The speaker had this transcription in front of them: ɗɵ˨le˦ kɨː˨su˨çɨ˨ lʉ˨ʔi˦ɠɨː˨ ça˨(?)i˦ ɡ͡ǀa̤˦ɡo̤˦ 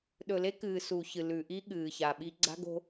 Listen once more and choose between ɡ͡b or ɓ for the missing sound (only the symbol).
ɓ